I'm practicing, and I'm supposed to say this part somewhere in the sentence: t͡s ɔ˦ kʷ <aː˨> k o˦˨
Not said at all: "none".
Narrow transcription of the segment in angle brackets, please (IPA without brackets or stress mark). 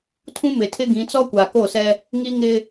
aː˨